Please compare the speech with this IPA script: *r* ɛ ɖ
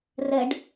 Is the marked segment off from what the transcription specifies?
no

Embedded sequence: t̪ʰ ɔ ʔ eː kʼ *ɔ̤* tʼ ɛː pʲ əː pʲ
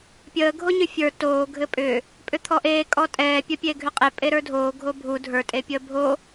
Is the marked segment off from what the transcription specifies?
yes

